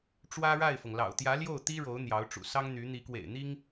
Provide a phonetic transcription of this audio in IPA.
ʈ͡ʂ w ä˥ ɻ a˥˩ ɪ̯ f ɤ˩ ŋ l ɑ̰˨˩ ʊ̯ t̪ j ä˧˥ l j o˥˩ ʊ̯ t̪ i˥ ɻ o˧˥ ʊ̯ n̪ j ɑ˧˥ ʊ̯ ʈ͡ʂ ṵ˨˩ s ɑ˥ ŋ n̪ y˧˥ n̪ i˧˥ k w ḛ˨˩ ɪ̯ n̪ i˥ ŋ

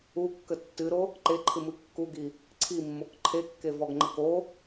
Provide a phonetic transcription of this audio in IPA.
u kː ə tː ɨ ɾ o | ǃ e ǃʰ ɨ m ɨ kː u ɡ i | ǀʰ i mː o k ǃʰ e kː e v ɔ ɡ ŋ͡ǃ ə k o

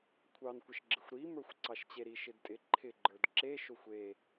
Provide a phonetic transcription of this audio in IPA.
kʷʰ ɑ n kʷ ə ʃ ɡ͡ǁ ɪ xʷ ɾ i m ə˞ xʷ ǀ ɑ ʃ t͡ɕ e ɾ i ʃ ɪ d tʼ ɪ ǃʰ ɪ ɡ͡ǃ ə˞ d ǁ e ʃ o xʷ e

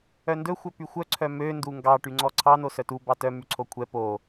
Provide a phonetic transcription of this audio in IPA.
œ n d ɵ xʷ œ p y xʷ œ ǀʰ œ m ø n d u ŋ ɡ ɑ ʈ y ŋ͡ǀ ɔ ǀʰ ɑ n o s œ t u b ɑ t œ m y ǀʰ o kʷʰ ɛ p o

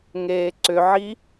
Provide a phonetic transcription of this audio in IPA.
ŋ eː ǀ ʏ ʕ i

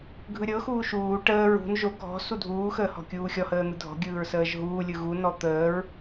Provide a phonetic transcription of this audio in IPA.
ɡʱ ɯ ɾʲ ɤ x uː ʃ uː ʈ əː ɹ ṳ n ʒ o ɡʱ ɔ̤ s u dʱ uː x əː h ɔ̤ kʲ uː xʲ ɔ h əː n̪ ɯ dʱ ɔ̤ ɡʲ ɯː ɹ s əː ʒ ɦ uː lʲ ɯ ɣ u n ɔ t̪ əː ɹ

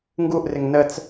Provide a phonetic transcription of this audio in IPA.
ŋ ɡ u ʔ r ɪ ŋ n ə t͡s

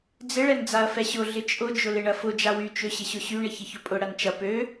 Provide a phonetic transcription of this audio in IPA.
d͡z ɪ ɭ ɛ n d͡z a ɐ̯ f ɛ ɕ ʊ ɮ ɪ t͡ʃʼ ʊ d͡ʒ ʊ l ɪ ɳ ɐ f ʊ d͡ʒ a w y t͡ʃ ø ɕ ɪ ɕ ʊ ɕ y ɳ ɪ ç ɪ ç ʊ pʼ ʊ ɽ ɐ n t͡ʃ ɐ p ø

